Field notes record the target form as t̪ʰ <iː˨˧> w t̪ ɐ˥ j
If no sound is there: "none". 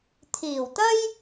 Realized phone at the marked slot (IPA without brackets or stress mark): iː˨˩